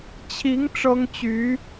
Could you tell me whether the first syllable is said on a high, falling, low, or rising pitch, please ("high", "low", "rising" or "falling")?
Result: rising